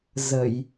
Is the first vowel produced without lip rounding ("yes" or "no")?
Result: yes